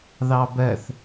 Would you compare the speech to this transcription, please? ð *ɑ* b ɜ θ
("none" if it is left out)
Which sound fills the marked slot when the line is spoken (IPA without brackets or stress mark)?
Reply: ɑ